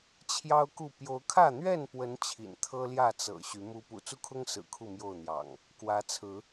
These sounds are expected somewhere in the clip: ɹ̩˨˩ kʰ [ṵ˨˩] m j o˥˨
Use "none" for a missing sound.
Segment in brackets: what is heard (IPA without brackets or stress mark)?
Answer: u˥˨